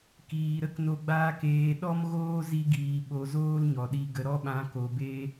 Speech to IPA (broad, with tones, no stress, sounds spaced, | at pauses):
k iː˨ ɾ ə˦ k n o˧ ɡ͡b aː˧ k eː˨ ɗ ɔ˦ m ɣ oː˦ z i˧ ɡ iː˨ ɓ o˨ z oː˦ l ɲ ɔ˨ ɗ i˧ ɡ ə˨ ɾ ɔ˧ ɓ ã˨˦ k o˨ b eː˦